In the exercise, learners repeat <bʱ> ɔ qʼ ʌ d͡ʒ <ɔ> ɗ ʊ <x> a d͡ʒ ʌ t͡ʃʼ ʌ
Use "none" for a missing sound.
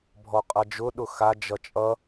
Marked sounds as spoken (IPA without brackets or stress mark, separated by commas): bʱ, ʊ, x